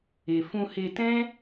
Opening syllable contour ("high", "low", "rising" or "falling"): low